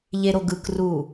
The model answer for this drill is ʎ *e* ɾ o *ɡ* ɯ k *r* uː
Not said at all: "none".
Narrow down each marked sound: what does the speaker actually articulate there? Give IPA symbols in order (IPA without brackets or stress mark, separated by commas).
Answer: e, ɡ, r